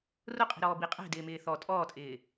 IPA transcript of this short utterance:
r ʊ qʼ i̤ ɾ ɔː b i qʼ ɛ̤ d ɪː m ɪː θ ɔ tʼ ɔː tʼ ɪː

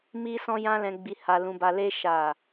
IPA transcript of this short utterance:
m i˦ s ɔ̃˦ j ã˦ l ɛ̃˧ ɡ͡b i˧ h a˧ l ũ˦ b a˦ l e˦ ʃ a˦˨

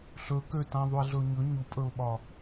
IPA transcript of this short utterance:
ɬ ɵ k ø t ã ðˤ u ɪ̯ ɮ ɵ ʊ̯ ɲ ɵ ɲ u pʼ ɵ ʊ̯ ɓ ɒ

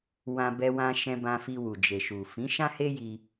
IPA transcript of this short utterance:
w ã˧ b ɛ˧ w ã˧ ʃ ɛ̃˧ b ã˧ f i˧ w u˨ d͡ʒ e˨ ʃ u˨ f ĩ˨˦ ʃ ã˦ h e˦ j i˧

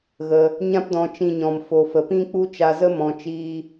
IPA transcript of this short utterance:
ɣ ə˧ | ɲ ã˦ p d ɔ̃˧ t͡ʃ ĩ˧ ɲ ɔ̃˨ m f o˨ f ə˨ p ĩ˦ k͡p u˦ t͡ʃ a˧ z ə˦ m ɔ̃˧ t͡ʃ iː˦

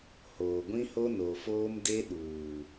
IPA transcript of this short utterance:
h oː˨ ɡʷ ĩ˦ h o˦ n o˨ f oː˦ m d e˦ ɗ uː˨

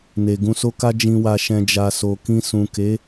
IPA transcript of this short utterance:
n e˨ ɡ ũ˧ s o˦ k a˦ d͡ʒ ĩ˧ w a˧ ʃ ɛ̃˧ d͡ʒ a˧ s o˨ k ĩ˧ s ũ˨ k e˨˦

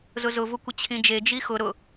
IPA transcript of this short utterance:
z ʊ z ʊ v ʊ kʷ ɪ t͡ɕʰ ĩ d͡ʒ e d͡ʒ i x ʊ ɾ ʊ

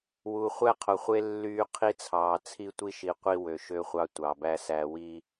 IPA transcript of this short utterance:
w u˨ χʷ æ˦ qʰ o˨ χʷ e˦ lː yː˦ qʰ i˦ t͡sʰ ɑː˨ t͡sʰ i˦ tʷ i˦ ʃ i˨ qʷ i˦ w ø˨ ʃ ø˦ χʷ ɑ˦ tʷ ɑ˨ b æ˦ s æ˦ w i˦

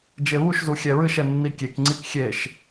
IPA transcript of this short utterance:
d͡ʒ e β u ʃ z u xʲ ɛ ɹ ɨ ʃ ɛ nː i kʲ e k ŋ͡ǀ i k xʲ e ʃ

